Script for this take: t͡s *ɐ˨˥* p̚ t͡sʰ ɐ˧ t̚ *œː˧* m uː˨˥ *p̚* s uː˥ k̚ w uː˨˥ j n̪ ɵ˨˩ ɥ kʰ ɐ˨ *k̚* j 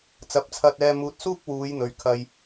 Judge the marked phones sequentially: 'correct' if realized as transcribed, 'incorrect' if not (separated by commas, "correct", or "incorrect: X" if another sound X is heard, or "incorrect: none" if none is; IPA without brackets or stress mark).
correct, incorrect: ɛː˧, incorrect: t̚, incorrect: none